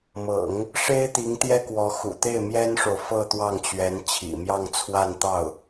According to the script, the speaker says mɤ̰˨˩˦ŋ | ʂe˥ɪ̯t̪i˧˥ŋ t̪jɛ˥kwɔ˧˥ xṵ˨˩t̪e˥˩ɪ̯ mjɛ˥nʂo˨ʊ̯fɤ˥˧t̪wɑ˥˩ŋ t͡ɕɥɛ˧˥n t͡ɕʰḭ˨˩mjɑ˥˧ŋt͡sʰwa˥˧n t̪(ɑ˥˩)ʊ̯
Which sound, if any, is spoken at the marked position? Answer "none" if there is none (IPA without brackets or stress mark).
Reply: ɑ˥˩